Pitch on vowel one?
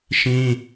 high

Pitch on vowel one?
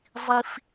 low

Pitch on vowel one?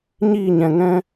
falling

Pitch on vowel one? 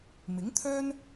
rising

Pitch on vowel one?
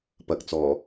rising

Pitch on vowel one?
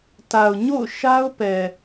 low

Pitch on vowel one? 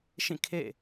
falling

